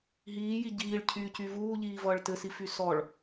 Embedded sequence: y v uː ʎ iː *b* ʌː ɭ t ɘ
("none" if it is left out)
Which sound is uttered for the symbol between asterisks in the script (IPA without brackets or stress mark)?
v